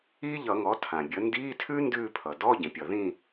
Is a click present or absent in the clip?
absent